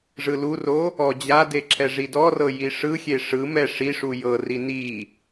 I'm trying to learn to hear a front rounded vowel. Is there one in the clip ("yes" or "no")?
no